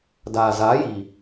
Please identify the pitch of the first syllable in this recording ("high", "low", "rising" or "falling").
low